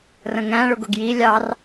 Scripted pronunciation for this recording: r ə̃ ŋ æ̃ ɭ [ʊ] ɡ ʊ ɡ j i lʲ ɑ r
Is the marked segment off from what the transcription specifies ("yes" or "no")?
no